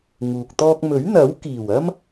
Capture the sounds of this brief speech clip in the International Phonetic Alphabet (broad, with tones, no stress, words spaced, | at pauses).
ŋuː˨k̚ t̪ɔː˧k̚mɵ˨˥ɥn̪ɐ˨˥w kiː˨˩wɐ˥m